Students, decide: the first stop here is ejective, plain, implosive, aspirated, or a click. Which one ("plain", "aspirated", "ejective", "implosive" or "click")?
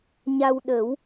implosive